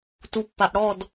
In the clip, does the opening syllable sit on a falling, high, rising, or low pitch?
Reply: low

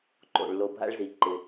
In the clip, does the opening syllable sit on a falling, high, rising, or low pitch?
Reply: low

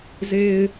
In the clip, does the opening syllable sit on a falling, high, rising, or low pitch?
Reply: low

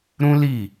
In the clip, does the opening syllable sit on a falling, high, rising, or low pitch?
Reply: high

